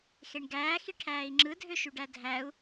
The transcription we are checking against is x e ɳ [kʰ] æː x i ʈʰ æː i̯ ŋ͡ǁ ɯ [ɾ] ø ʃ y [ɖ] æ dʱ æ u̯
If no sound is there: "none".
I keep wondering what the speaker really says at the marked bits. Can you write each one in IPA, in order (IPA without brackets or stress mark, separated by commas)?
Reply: ɡ, dʱ, ɖ